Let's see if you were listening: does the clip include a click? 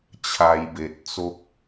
no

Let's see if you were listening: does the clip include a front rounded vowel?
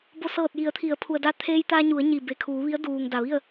no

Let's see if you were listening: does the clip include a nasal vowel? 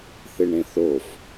yes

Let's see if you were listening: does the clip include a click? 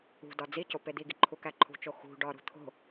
yes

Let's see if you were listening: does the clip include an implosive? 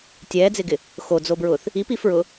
no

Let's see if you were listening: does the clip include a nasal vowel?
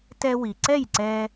no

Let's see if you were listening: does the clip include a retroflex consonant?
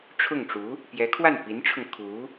yes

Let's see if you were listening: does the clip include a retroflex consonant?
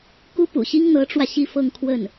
yes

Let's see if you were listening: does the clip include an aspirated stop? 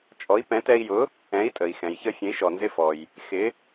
no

